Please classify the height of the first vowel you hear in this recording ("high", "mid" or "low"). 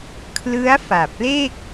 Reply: high